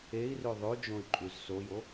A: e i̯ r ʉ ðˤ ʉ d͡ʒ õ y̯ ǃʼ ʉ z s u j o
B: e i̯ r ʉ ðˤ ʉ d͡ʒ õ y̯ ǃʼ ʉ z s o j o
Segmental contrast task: B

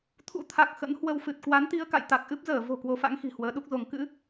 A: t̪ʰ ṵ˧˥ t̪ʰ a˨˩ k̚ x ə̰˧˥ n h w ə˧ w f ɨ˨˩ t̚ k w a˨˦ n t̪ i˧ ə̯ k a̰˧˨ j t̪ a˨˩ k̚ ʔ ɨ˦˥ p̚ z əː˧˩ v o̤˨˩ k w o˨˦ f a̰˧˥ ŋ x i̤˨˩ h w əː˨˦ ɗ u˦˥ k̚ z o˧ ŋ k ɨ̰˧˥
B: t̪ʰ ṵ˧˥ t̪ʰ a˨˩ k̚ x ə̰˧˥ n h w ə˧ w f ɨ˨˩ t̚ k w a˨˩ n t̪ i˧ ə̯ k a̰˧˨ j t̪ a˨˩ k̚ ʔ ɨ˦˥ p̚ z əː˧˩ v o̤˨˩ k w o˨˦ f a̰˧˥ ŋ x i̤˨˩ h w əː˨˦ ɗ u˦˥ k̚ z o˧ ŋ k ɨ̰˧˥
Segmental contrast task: A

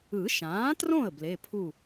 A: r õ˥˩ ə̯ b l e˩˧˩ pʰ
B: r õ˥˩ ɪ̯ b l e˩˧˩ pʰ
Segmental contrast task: A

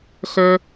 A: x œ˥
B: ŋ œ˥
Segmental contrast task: A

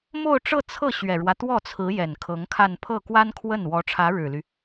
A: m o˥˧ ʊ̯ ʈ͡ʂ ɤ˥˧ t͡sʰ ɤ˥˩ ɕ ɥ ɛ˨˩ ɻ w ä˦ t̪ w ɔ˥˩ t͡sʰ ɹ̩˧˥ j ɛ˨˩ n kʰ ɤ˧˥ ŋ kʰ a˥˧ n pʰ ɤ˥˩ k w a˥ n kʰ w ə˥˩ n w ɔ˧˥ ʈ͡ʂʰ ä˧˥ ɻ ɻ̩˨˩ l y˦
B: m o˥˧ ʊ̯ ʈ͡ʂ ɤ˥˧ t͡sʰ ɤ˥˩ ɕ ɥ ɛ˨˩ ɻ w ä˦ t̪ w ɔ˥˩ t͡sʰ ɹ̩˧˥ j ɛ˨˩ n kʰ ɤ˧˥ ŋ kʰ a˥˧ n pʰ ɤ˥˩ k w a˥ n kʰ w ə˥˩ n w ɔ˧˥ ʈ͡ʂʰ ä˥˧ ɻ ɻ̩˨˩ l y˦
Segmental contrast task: A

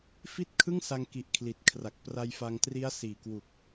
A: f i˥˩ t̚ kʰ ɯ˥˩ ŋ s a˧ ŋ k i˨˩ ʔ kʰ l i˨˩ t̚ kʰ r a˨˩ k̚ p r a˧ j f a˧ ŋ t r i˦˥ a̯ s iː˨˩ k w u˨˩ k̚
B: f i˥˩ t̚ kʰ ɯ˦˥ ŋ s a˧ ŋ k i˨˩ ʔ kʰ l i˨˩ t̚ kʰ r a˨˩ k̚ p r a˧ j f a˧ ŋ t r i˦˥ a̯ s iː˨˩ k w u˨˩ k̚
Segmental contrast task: A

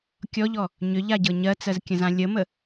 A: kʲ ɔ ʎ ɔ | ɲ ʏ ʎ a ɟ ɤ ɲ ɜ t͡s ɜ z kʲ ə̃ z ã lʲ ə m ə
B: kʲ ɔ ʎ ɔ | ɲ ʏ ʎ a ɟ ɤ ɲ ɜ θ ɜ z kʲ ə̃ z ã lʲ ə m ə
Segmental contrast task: A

